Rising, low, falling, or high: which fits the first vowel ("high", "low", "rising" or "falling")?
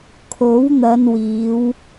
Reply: rising